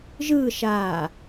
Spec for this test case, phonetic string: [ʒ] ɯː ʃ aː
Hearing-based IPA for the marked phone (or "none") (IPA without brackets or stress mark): ʒ